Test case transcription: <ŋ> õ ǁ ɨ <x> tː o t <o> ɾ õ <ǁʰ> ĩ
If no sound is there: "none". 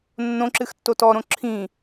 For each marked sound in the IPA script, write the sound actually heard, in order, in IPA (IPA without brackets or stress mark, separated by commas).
nː, x, ɔ, ǁʰ